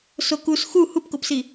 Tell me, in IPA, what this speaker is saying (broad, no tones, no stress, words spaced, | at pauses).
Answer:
sokus xu hupkopsi